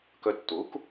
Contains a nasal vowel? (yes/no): no